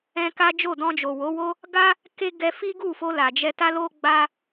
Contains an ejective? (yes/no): no